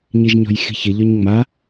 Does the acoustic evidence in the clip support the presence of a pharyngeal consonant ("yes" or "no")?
no